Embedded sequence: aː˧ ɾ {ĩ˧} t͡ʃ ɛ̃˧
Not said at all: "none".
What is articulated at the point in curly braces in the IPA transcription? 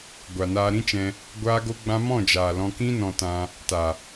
ĩ˦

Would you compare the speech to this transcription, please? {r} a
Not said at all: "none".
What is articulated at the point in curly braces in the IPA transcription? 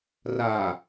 r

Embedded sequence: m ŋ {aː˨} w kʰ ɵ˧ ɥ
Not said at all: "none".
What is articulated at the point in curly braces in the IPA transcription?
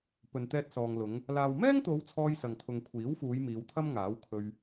aː˨˥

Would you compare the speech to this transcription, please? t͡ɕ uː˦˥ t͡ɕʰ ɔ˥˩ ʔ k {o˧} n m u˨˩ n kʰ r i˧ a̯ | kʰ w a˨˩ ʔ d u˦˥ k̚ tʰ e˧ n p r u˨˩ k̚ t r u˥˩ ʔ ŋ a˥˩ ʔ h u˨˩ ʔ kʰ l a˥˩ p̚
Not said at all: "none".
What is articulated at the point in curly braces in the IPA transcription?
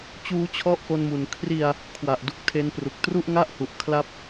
o˧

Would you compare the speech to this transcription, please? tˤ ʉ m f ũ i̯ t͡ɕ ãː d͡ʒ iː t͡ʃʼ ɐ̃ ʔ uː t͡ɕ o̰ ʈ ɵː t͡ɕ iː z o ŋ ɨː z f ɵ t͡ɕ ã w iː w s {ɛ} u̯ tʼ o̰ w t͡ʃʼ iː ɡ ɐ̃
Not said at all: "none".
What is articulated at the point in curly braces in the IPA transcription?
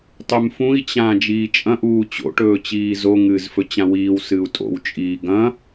ɨ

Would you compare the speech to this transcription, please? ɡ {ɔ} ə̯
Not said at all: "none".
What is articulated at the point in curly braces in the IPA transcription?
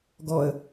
ɔ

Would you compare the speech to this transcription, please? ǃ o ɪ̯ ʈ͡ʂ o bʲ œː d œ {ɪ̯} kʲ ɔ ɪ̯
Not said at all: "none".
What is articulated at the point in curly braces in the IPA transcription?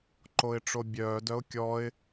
ʊ̯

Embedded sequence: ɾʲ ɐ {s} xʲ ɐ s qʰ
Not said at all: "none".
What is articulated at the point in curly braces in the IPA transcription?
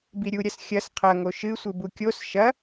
s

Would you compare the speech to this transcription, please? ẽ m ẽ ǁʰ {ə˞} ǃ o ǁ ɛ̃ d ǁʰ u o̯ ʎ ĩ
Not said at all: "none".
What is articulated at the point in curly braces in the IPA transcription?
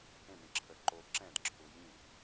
ə˞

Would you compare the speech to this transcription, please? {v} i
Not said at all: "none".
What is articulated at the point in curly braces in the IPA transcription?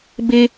b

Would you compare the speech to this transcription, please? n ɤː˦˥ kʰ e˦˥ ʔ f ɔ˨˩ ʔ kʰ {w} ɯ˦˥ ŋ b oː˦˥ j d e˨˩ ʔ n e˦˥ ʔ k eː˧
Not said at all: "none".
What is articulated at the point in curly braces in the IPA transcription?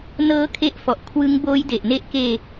w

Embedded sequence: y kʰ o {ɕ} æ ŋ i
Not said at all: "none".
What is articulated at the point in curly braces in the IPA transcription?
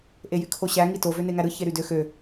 ɕ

